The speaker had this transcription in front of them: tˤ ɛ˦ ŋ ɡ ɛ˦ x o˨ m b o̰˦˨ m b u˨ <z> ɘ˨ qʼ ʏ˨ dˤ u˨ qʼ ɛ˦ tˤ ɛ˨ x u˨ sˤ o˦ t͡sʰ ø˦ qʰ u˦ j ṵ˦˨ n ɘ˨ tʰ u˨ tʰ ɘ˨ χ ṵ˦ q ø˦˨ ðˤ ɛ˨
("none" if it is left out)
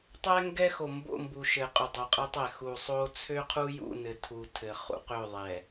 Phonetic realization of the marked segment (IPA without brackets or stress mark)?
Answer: ʃ